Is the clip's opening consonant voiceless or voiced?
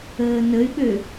voiced